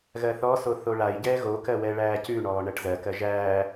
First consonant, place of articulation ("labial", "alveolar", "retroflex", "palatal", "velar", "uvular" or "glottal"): velar